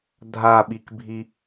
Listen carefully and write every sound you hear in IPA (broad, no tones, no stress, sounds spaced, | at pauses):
dʱ a ɓ i k bʱ i